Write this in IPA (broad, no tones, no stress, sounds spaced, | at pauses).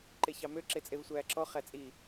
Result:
ǃ e ç ɑ m ø ǁ e t͡sʼ e v sʷ æː ǁ ɔ χ æ t͡sʼ i